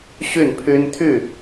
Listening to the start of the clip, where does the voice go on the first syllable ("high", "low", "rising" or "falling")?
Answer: falling